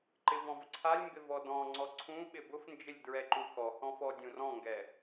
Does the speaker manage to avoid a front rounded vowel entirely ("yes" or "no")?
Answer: yes